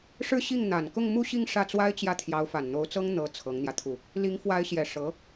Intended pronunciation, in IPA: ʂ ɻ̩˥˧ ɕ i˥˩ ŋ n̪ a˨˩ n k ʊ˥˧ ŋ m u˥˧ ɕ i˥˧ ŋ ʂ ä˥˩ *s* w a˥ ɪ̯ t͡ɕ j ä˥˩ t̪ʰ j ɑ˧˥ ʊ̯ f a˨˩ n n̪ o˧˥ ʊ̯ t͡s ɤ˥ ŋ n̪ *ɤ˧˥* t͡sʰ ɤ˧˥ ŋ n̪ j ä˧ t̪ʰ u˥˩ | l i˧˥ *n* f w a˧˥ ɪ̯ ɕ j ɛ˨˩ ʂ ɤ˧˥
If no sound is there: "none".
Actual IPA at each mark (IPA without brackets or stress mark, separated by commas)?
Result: t͡s, ɤ˧˥, ŋ